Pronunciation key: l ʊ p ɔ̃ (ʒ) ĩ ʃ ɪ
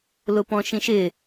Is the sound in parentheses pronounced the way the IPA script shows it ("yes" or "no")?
no